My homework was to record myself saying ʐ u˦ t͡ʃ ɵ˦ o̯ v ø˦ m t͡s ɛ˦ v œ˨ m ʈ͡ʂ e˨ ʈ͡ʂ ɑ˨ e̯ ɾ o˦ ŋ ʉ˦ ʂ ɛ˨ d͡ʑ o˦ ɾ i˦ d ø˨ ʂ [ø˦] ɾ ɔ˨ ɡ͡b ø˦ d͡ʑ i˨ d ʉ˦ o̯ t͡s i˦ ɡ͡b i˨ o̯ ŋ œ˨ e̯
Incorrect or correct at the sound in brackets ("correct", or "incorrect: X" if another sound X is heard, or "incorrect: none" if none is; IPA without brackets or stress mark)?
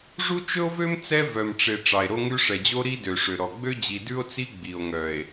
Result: incorrect: ø˨